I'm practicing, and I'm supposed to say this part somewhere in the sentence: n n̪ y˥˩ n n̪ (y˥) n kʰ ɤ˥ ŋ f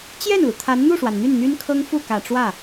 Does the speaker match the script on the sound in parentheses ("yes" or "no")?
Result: yes